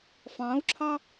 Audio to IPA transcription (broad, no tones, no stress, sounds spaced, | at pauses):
f ɑ̃ u̯ ǁʰ ɑ